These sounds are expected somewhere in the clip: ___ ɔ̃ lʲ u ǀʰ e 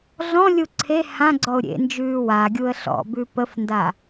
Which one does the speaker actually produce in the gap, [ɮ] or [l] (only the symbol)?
ɮ